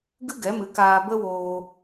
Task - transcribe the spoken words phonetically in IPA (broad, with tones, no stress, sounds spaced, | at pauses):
ɡ ɨ˦ ɡ ɛ˨˦ m ɨ˨˦ k aː˧ b ə˦ w oː˧